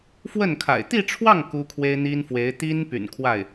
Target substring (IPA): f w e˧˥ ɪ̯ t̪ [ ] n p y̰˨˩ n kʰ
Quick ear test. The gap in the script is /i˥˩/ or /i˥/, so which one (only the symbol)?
i˥